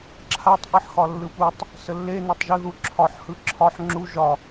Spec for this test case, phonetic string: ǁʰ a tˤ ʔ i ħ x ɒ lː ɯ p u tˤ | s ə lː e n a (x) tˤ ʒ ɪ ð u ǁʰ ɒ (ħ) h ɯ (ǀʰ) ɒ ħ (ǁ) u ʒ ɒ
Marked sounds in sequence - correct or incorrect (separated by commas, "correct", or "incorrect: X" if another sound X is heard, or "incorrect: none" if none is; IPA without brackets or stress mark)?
incorrect: none, correct, incorrect: ǁʰ, incorrect: ŋ͡ǁ